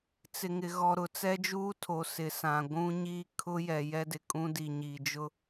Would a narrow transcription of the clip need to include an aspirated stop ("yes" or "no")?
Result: yes